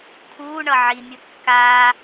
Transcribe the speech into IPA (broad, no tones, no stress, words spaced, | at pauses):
kʰuːɳʌ ʕimʲu kːaː